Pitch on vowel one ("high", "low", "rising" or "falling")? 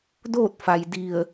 falling